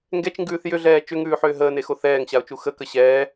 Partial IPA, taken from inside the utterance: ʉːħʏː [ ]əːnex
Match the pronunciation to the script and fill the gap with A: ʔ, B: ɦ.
B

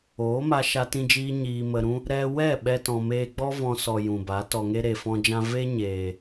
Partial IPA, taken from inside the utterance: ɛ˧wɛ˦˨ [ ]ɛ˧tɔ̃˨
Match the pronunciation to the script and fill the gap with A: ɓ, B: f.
A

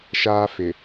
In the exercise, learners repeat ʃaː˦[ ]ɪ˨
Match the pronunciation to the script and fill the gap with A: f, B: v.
A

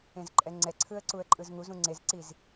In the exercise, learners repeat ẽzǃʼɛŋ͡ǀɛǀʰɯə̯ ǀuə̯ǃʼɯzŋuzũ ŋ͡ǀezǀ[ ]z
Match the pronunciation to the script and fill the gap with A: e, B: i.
B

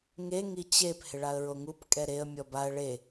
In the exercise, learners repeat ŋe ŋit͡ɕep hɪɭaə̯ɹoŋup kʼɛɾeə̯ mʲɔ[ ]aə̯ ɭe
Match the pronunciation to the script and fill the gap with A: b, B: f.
A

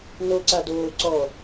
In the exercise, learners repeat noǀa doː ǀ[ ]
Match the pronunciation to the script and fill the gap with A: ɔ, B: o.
A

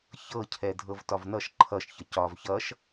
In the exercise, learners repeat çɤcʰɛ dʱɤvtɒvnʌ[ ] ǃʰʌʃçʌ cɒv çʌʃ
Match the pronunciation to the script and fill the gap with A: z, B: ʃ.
B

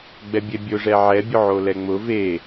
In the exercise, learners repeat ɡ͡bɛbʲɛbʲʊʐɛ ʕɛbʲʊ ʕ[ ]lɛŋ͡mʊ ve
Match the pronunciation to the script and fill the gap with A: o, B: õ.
A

